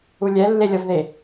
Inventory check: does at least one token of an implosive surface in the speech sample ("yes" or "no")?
no